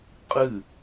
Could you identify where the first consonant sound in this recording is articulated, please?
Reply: uvular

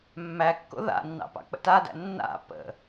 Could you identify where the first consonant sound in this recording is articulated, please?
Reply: labial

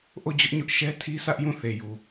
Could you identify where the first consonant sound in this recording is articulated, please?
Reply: glottal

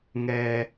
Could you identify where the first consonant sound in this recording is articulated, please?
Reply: velar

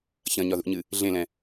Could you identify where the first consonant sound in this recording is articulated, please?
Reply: palatal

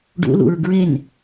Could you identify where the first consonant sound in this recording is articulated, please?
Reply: retroflex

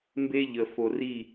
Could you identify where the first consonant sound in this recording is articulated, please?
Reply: labial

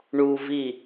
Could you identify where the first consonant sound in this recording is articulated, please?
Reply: retroflex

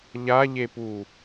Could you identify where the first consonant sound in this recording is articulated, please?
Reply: palatal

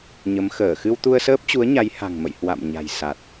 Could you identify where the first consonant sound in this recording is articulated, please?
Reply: palatal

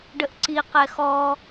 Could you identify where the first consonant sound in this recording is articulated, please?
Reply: retroflex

